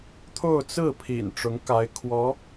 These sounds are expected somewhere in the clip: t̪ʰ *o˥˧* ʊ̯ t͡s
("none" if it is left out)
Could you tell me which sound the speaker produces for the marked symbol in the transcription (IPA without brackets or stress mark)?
o˥˧